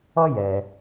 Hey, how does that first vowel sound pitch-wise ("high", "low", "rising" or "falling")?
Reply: high